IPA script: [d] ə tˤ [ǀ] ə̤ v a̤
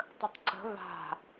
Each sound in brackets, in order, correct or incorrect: incorrect, correct

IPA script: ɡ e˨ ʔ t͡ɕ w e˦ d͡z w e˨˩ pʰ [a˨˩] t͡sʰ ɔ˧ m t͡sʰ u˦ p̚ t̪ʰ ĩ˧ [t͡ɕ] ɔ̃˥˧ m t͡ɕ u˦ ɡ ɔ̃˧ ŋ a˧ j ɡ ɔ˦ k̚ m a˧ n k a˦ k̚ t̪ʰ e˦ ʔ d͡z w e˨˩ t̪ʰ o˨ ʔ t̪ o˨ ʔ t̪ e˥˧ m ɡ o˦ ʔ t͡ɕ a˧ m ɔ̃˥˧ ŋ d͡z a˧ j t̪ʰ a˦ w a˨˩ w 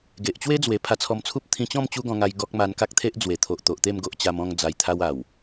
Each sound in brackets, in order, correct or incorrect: incorrect, correct

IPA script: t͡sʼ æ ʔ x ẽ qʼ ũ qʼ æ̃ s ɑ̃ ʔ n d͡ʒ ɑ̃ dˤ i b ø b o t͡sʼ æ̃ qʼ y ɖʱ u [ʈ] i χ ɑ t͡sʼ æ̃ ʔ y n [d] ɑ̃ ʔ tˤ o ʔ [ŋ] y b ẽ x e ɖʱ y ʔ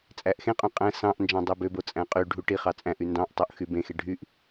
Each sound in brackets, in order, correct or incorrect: correct, correct, incorrect

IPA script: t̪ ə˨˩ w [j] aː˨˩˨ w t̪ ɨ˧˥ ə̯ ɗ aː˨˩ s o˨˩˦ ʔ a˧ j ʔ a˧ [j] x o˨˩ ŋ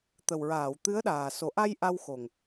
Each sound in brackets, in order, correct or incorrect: incorrect, incorrect

